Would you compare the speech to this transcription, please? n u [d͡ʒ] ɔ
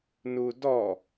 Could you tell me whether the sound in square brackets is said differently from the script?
yes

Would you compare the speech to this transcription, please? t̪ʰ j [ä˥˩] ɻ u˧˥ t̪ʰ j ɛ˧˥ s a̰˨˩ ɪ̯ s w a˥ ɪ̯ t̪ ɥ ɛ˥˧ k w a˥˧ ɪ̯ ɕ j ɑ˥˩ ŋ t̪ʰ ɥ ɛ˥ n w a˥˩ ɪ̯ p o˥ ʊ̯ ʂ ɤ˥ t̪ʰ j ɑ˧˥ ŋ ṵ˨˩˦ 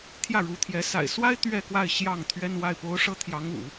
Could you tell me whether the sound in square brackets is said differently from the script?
no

